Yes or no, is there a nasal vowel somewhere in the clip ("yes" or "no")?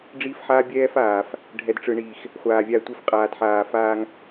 no